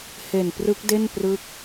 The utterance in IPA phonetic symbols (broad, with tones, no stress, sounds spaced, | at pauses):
h e˨˩ n p r ɯ˦˥ k̚ d e˥˩ n p r ɯ˦˥ k̚